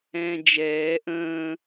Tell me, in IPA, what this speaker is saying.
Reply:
ɛ̃ːd͡ʒɛː ʔə̃ː

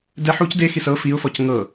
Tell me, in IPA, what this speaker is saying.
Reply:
dɛ ħuc dexis ɤ fiʊ̯fɔc ŋɤ

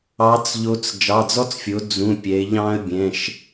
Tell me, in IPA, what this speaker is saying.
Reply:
ɑ˩˧t͡sʎo˩˧t͡s d͡ʒɑ˩˧˩d͡zɔ˦t͡sfʲo˩˧ d͡zũ˩˧˩ pʲɛ˩˧ɪ̯ʎɑ̃˦ə̯ bʲɛ̃˩˧˩ʃ

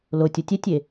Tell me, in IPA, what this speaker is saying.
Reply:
lotʲ otʲɛtʲe

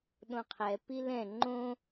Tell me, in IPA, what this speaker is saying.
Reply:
ɗõqʰɛ pilɛ̃ ŋ͡ǃõ

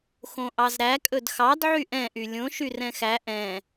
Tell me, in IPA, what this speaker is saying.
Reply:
xõʔɑzɾæ kʼɵdxɑd ʕyʔɛ̃ ʔylʲõ ʃyrɛ̃xæ ʔɛ̃

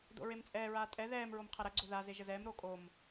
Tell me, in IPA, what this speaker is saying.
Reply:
do̰ɹemt͡sʼɛːɹaː tʼɛ ðɛːm ɹomqʰɐɾɐɡ͡ǀo ðaze ʒəzɛːmɾoː kʼom

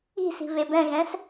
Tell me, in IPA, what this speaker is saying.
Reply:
i̤si̤ βebɛ̃ɣɛ̃s

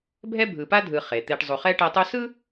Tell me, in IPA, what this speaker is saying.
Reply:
bʱɛ˥bʱɯ˨pa˥dʱɯ˨ χe˩t̪e˨ʈ zˤu˨χɛ˥ʈɛ˦tˤu˥ sɯ˥

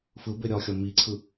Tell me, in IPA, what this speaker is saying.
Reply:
fɯ beɾʲɒxʲɒ miǀʰɯ

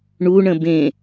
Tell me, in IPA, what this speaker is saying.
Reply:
ɳuɳə̃ bẽ

